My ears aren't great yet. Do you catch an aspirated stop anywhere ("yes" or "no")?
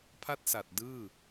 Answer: yes